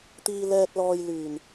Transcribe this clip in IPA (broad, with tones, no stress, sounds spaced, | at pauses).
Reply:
t̪ iː˧ l ɛː˧ t̚ l ɔː˧ j l yː˨˩ n